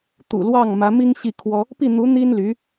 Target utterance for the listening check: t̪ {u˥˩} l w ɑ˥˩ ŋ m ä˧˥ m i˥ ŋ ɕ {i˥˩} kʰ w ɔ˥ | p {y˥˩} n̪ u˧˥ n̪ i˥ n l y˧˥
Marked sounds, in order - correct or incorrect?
incorrect, correct, incorrect

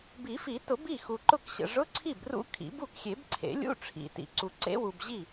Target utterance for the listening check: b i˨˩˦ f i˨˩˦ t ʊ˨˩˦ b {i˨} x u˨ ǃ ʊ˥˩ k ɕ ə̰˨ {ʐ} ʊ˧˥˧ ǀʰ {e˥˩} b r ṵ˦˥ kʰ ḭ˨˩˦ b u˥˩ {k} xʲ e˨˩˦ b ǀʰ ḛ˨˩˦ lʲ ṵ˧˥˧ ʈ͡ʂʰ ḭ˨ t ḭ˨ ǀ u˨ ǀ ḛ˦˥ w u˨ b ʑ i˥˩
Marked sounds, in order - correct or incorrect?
incorrect, correct, incorrect, correct

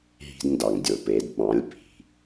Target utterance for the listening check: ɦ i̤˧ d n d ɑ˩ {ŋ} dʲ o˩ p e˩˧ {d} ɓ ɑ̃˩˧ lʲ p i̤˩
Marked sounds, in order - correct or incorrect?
correct, correct

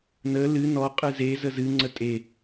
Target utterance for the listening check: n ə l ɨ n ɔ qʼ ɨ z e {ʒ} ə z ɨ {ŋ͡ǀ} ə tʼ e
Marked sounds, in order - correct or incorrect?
incorrect, correct

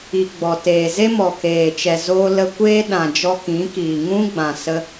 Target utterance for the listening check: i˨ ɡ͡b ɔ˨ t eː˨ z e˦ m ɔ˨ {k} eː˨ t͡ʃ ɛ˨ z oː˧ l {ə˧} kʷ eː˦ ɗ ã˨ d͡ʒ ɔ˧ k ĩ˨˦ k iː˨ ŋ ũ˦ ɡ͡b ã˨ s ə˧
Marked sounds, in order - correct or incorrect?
correct, correct

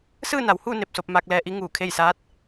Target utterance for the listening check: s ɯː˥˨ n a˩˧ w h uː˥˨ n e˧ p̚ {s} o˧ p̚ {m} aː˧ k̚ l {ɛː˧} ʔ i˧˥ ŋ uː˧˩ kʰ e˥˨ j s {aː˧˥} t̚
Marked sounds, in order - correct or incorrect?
correct, correct, correct, correct

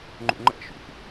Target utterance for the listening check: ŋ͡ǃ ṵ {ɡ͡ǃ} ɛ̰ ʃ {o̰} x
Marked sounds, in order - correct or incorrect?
incorrect, incorrect

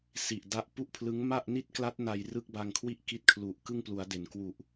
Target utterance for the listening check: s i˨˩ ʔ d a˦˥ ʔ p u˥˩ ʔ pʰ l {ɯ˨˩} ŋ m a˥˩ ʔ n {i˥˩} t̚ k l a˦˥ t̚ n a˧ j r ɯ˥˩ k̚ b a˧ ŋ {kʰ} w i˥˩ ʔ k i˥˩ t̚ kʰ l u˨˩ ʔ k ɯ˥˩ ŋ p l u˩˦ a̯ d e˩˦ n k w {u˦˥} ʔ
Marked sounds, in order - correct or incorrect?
incorrect, correct, correct, incorrect

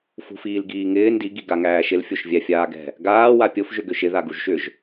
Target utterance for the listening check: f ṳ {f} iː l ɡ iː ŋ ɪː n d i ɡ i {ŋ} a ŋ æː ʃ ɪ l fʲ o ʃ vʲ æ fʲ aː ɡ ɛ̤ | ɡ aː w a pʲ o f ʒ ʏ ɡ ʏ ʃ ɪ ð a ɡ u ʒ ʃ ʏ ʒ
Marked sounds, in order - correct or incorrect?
correct, incorrect

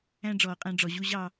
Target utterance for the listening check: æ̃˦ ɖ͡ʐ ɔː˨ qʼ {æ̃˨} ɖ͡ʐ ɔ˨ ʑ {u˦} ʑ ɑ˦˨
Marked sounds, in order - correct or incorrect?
incorrect, correct

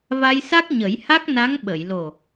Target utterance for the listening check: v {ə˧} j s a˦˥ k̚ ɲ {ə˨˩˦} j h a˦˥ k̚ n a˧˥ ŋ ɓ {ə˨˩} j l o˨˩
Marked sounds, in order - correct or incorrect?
incorrect, correct, incorrect

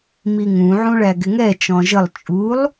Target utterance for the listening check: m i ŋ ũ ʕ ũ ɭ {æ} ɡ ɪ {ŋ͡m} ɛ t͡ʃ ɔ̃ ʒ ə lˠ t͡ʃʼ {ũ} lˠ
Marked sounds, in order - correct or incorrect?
correct, incorrect, incorrect

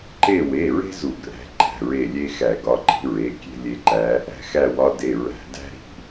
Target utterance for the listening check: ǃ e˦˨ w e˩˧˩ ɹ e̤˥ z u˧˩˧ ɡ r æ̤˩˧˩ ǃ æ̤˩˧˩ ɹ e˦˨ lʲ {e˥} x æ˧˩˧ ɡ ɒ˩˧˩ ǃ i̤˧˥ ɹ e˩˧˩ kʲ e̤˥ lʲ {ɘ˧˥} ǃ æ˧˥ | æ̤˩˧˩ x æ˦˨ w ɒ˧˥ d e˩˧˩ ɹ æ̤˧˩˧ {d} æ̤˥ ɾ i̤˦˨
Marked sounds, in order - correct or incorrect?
correct, incorrect, correct

